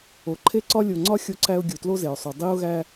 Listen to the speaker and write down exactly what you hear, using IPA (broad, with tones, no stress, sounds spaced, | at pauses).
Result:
o˨ ǃʰ e˦ ǀ ɒ˦ lʲ o˨ ŋ͡ǀ ɒ˦ xʲ o˦ ǀ æ˦ ʊ̯ ɡʲ u˨ t l o˦ z e˨ ʊ̯ sˤ u˨ dˤ i˦ ʊ̯ ɣ æ˦